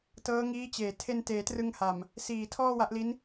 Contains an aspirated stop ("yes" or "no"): yes